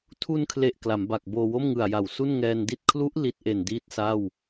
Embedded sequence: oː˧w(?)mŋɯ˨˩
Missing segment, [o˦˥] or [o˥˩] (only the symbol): o˥˩